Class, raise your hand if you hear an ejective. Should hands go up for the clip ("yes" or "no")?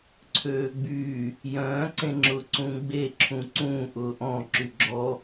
no